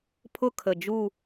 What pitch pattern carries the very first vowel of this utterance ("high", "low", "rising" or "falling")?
falling